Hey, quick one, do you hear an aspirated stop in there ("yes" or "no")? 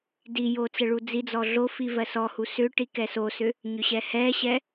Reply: no